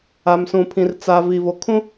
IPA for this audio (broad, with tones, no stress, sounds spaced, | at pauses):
a˨ m s ũ˨ pʰ ĩ˨ r t͡s a˨ v iː˨ v o˨ kʰ ũ˦